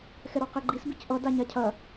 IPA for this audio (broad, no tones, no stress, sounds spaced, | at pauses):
x ɛ ɾ ɔ q ɛ ɡ͡ǃ i s b i c ʔ ʌ d a ɲ a cʰ ɐ